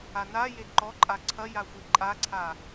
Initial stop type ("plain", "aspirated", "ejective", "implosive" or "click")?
click